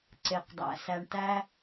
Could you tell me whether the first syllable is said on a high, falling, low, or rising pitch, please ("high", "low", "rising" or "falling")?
low